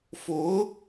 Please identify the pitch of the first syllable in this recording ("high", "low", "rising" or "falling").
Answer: rising